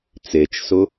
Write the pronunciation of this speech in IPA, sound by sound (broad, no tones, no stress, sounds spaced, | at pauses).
t͡s e t͡ʃ s ʊ